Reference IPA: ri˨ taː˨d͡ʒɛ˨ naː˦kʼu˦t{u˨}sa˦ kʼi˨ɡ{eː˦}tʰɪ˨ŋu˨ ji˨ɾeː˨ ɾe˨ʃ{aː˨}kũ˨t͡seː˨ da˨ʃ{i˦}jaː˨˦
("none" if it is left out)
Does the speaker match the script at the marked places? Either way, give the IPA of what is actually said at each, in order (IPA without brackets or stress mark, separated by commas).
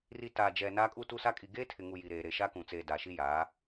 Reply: u˦, eː˦, aː˦, i˦